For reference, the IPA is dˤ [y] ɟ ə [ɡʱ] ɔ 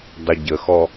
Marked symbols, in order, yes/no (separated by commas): no, no